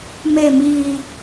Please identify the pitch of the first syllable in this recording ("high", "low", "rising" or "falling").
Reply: low